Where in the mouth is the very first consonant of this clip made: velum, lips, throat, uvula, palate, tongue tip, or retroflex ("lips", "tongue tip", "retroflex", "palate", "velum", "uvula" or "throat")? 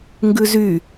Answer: velum